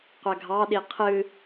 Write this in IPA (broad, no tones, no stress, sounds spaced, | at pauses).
qʷ æ ɡʱ ɑ ɗ i qʰ ɨ